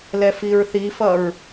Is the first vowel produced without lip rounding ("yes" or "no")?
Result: yes